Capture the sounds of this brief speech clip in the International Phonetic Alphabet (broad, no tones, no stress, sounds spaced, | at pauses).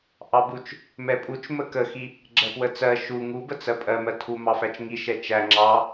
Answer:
ʔ ɑ b u t͡ʃ | m ɛ pʼ u t͡ʃ m ə k ə x i | ɡ͡ǁ ɜ p w ə t͡s ɜ ʃ u ŋ u b ə t͡s ɜ pʼ ɜ m ɜ tʰ u m ɑ f æ t͡ʃ ŋ i ʃ ɛ t͡ʃ æ ŋ͡ǁ ɑ